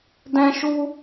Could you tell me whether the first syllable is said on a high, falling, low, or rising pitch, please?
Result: high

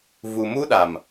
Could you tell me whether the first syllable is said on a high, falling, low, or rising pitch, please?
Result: low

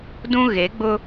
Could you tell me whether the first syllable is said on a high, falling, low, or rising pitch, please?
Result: high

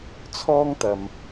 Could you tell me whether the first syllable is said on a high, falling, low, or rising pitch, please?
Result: high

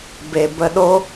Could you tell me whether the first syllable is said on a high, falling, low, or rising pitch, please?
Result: low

